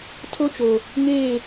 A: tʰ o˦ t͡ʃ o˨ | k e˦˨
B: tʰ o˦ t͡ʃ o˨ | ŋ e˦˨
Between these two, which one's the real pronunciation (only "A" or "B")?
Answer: B